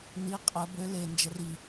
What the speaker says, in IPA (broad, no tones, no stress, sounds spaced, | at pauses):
n i qʼ ə b ø l e n d͡ʒ ɛ r i